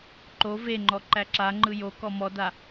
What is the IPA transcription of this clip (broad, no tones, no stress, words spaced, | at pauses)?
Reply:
ǃo veŋ͡ǃɔ ǃæǁaŋ͡ǃɯ jo kɔmɔda